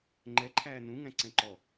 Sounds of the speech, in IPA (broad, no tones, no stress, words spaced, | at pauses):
ŋ͡ǃɛ ǃʰæːnũ ŋæ̃ǀɛ̃ǃɔ